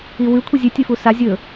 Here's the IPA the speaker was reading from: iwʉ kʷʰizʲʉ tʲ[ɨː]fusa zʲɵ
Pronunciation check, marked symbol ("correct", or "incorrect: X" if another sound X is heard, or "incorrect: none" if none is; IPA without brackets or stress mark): incorrect: ɨ